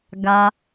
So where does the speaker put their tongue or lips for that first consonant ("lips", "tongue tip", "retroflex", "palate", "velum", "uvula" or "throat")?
velum